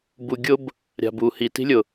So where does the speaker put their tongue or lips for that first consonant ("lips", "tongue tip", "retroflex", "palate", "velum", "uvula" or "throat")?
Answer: lips